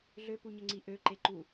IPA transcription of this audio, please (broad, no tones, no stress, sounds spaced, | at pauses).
ɮ ø p u ɲ ə ŋ͡ǀ i ʔ ø ǃ e ǃ u